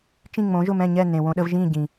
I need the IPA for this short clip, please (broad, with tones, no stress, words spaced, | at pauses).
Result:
t͡ʃĩ˥˩ŋ͡mõ˩˥ ʒʊ˥˩mɛ̃˥˩ɲɛ˥˩ nẽ˩wõ˧ɗə˧v ʒĩ˥˩ ɟĩ˩